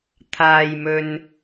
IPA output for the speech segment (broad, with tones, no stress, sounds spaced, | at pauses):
t̪ʰ aː˨ j m ɵ˨ n